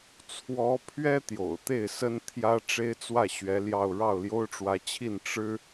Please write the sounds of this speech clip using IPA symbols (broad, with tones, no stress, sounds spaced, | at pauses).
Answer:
t͡sʰ w ɔ˧˥ pʰ ɥ ɛ˥ t̪ j o̰˨˩ ʊ̯ t̪ e˥˩ ɪ̯ s ə˥ n t̪ʰ j ä˥ ʈ͡ʂ e˥ ɪ̯ t͡s w ä˥˩ ɕ ɥ ɛ˧˥ l j ɑ˥˧ ʊ̯ ɻ ɑ˥˩ ʊ̯ l j o˥ ʊ̯ ʈ͡ʂ w ä˧˥ t͡ɕʰ i˥˩ n ʈ͡ʂ ɻ̩˥